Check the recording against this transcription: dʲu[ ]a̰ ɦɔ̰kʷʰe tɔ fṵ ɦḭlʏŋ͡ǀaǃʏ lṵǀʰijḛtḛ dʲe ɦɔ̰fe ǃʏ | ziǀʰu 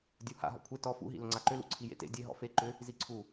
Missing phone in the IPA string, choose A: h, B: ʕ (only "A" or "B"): A